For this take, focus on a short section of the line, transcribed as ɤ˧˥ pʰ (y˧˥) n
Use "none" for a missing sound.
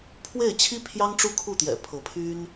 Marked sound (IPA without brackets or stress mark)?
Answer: y˥